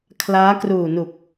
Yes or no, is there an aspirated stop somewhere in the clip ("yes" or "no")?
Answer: yes